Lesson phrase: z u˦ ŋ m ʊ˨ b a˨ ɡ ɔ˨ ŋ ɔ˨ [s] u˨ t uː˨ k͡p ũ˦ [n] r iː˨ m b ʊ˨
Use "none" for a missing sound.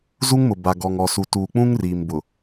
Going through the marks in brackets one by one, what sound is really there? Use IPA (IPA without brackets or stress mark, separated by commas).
s, ŋ